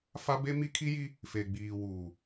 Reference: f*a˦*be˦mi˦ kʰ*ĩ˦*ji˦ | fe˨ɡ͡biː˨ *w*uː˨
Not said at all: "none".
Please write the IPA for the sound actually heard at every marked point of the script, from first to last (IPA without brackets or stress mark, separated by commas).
a˦, i˦, w